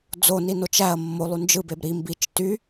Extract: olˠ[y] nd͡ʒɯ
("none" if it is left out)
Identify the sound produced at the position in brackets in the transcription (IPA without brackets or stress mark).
y